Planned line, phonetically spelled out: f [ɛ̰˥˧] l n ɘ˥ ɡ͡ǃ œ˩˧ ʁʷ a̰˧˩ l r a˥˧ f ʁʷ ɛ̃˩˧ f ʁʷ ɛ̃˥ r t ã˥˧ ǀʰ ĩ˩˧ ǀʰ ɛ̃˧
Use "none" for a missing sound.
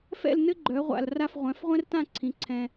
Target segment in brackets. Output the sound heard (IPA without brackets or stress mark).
ɛ̰˥˧